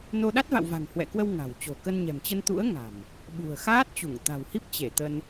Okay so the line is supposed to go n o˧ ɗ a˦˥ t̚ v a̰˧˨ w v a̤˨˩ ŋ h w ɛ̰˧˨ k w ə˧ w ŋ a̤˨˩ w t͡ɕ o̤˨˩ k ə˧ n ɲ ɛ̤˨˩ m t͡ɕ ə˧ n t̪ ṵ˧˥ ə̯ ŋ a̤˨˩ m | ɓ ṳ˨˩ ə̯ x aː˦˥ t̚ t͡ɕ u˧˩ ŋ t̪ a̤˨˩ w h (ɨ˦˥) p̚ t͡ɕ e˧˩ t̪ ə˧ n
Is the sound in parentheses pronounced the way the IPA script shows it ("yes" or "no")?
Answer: no